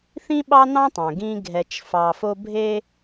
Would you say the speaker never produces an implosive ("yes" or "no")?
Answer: no